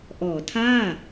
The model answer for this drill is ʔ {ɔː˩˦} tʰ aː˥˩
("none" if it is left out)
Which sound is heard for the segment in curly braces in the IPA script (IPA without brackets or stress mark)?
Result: ɔː˩˦